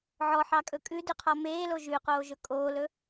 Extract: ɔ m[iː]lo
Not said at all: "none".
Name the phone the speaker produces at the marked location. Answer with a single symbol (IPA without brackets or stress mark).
eː